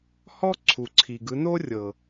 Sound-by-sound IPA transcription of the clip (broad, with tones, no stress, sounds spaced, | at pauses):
h ɔ˦ ǀʰ u˨ ǀʰ i˨ ɡ ɯ˨˦ n o˦ rʲ ɤ˨